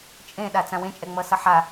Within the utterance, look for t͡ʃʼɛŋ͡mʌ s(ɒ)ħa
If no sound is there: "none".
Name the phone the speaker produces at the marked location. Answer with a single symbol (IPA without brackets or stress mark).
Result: ʌ